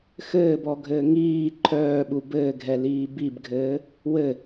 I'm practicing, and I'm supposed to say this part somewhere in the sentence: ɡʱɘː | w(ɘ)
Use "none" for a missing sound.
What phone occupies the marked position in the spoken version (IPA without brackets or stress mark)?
ɘ